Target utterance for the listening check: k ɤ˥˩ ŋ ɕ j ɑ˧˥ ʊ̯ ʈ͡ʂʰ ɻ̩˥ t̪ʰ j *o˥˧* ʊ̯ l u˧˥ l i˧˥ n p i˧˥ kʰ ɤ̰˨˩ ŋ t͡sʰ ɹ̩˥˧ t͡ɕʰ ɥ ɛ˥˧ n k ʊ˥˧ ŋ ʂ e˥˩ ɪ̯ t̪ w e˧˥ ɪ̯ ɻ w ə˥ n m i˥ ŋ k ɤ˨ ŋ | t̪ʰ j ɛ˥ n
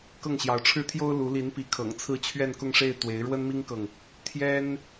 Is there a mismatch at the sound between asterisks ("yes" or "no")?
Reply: yes